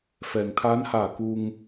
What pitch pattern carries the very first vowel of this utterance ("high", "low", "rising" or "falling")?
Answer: low